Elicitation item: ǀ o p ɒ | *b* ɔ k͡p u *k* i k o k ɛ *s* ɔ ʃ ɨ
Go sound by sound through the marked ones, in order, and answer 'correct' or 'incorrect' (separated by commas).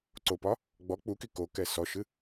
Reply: incorrect, correct, correct